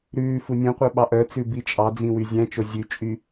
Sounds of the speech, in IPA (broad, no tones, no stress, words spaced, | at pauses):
ɾʉː funʲũqʷœ ɓɑʔœt͡sʉ bit͡ʃʼɑd͡zĩ wyzʲæ̃t͡ʃo zʲʉt͡ʃʼy